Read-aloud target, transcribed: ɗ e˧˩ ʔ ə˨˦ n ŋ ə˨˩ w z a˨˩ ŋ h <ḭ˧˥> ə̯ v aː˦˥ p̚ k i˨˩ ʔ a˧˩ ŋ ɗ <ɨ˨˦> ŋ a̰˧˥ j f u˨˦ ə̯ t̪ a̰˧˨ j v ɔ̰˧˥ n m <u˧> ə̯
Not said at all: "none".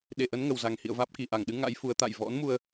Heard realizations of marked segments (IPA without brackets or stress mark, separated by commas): ḭ˧˨, ɨ˨˦, u˧